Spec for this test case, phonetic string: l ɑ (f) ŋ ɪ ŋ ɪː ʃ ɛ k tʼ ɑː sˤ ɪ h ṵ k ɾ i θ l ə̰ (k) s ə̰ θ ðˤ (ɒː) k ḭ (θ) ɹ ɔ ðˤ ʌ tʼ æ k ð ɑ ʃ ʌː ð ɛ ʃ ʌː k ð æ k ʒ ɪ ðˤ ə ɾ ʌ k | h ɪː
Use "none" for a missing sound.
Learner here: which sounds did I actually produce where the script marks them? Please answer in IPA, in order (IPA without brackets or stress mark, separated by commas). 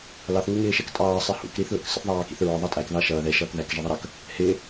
θ, k, ɑː, θ